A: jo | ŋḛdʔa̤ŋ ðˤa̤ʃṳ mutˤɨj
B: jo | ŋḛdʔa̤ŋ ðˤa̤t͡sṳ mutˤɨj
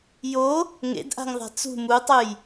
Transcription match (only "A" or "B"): B